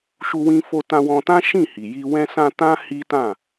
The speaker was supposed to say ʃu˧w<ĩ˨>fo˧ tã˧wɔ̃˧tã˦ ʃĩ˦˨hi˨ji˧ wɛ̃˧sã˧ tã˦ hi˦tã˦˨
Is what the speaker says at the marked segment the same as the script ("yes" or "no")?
no